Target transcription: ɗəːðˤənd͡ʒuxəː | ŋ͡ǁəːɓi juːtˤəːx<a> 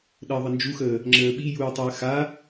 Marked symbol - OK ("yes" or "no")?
yes